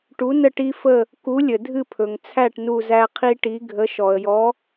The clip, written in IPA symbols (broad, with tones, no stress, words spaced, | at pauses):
ʈu˨˥nə˦˨ ʈi˦fə˦˨ | ku˨˥lʲə˩ dʱɨ˦˨pʰɵ˩ŋt͡sʰæ˦˨ʈ nu˦˨zæ˦qʰi˦ʈi˨˥ ɡʱə˨˥ ʃɔ˩ə̯jɔ˨˥